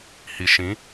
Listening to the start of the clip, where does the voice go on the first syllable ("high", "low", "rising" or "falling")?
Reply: low